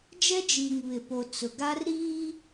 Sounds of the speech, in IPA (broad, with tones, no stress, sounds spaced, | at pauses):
d͡ʒ ɛ˦ d͡ʒ iː˨ ŋ β ɪ˨ p o˨ t͡s ʊ˨ ɡ a˦ r ɾ iː˦